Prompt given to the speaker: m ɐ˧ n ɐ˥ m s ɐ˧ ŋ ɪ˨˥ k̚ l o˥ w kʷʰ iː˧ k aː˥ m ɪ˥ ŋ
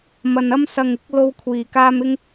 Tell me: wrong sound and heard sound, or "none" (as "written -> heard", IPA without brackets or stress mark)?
none